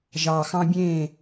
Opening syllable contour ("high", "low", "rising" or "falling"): low